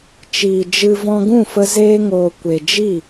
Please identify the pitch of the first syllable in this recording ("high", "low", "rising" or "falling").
low